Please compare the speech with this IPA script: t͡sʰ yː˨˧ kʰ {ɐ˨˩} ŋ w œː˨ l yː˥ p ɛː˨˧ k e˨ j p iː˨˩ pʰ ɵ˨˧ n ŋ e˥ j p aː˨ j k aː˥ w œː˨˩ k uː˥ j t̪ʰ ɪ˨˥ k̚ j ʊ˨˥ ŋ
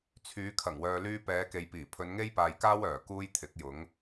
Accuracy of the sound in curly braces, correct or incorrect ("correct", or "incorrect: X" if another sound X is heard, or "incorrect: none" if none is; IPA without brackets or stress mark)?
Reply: correct